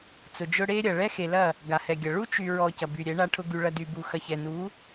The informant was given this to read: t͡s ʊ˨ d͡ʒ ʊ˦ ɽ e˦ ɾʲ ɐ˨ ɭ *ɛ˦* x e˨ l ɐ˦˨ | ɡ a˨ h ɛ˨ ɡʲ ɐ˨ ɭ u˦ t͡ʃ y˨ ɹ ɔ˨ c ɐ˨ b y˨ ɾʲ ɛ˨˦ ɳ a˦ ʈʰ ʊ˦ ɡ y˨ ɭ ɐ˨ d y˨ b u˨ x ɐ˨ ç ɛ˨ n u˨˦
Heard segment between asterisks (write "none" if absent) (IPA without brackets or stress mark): ɛ˦